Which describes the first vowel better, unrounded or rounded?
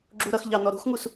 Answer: rounded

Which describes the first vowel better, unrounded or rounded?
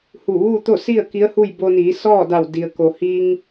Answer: rounded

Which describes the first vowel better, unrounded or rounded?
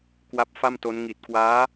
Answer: unrounded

